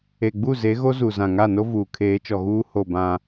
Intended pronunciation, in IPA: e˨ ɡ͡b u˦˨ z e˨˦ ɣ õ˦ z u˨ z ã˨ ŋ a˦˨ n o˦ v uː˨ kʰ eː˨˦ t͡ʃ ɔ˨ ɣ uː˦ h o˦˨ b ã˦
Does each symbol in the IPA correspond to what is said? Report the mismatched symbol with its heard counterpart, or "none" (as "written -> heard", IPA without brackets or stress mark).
õ˦ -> o˦